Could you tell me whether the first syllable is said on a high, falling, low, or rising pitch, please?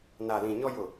low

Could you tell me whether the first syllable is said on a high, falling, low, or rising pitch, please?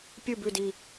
falling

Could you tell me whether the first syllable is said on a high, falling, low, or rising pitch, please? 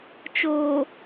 low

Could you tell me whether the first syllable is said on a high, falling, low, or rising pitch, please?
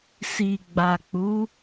low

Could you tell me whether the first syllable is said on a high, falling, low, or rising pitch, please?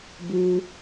low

